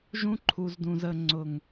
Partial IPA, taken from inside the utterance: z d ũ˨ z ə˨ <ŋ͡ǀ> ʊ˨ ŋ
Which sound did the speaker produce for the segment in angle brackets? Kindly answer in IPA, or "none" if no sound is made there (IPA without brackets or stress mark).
ŋ͡ǀ